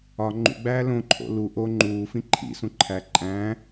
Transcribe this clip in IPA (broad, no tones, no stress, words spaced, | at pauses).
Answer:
ɒ ŋ͡ǃṵɡ͡bæː lõǃʰo̰ lu ʔo ŋ͡ǃuːfĩ ǃʰḭsũ ǃʰæ ǃʼæ̃ː